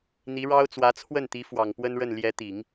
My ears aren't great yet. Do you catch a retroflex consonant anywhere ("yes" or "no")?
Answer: yes